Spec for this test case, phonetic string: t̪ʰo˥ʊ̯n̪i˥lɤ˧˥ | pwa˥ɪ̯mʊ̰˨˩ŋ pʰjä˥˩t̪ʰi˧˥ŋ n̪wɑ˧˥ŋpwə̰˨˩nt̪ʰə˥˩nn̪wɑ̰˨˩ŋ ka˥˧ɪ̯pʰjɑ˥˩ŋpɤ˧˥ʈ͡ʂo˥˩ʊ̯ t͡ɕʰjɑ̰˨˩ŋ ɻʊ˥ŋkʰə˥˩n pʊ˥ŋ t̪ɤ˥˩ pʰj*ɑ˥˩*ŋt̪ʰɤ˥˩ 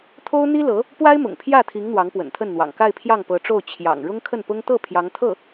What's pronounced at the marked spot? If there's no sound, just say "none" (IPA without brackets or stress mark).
ɑ˧˥